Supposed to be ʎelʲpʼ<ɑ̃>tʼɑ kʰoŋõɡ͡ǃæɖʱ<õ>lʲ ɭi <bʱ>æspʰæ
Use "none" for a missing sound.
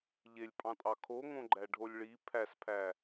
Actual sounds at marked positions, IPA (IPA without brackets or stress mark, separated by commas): ɑ̃, o, pʰ